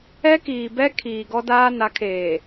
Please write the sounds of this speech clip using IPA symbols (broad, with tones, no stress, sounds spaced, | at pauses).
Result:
ɛ˦ k iː˨ b ɛ˦ kʰ iː˨ ɡ ɔ˦ d aː˦ n a˨˦ kʰ eː˨